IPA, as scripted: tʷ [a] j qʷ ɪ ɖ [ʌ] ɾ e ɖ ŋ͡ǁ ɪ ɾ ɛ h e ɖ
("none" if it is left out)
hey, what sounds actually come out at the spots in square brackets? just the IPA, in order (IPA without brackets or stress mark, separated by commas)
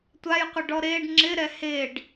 a, ɔ